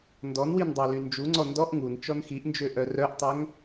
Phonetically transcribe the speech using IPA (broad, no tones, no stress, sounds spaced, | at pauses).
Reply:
n d ɔ n w i n dˤ ɑ l y n d͡ʒ u ŋ͡ǀ ɔ n d ɔ ʔ ŋ u n t͡ʃ ɔ n x i ʔ n d͡ʒ ø ʔ œ r œ ʔ tˤ œ ŋ